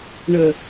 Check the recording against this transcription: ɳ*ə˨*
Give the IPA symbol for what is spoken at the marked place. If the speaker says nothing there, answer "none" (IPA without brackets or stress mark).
ə˨